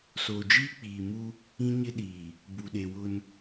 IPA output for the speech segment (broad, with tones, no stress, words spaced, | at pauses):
soː˨d͡ʒiː˦k͡piː˨mu˦ | ĩ˦ɲɪ˦ɗiː˨ | bu˨ɗe˨wʊ˦n